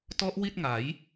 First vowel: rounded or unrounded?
rounded